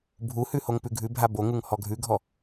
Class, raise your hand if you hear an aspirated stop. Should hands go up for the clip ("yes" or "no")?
no